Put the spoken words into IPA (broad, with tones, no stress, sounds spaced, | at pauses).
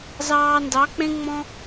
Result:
z ɑː˧ n d ɑ˨˦ k͡p ẽ˦ ŋ͡m ɔ̃˦